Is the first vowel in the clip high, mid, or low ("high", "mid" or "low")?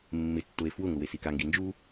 high